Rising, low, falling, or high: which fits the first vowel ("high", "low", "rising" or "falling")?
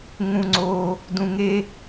high